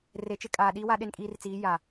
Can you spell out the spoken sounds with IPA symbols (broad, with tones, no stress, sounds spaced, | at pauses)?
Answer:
r e˨ t͡ʃ ɪ˦ kʼ aː˨ ɗ iː˦ w a˦ ɗ e˦ n kʼ iː˦ r t͡s iː˨˦ j a˨